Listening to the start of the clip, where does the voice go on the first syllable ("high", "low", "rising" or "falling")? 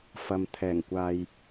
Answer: low